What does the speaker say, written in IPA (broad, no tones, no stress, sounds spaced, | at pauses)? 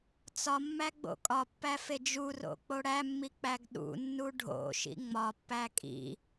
t͡s ɒ mː æ ɡ͡b o̰ kʼ ɒ pː æ f e d͡ʒ u r o̰ k͡p o ɽ æ mː i k͡p æ ɡ ɗ ṵ nː u ɖʱ o̰ ʃ ḭ ŋ͡m ɒ pː æ kʼ ḭ